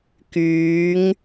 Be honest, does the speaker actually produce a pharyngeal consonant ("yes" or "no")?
no